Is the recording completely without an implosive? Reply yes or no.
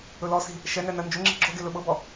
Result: no